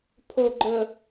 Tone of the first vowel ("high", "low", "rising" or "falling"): low